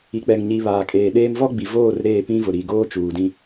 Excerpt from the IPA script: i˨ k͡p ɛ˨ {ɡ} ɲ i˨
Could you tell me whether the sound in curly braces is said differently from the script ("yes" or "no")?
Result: yes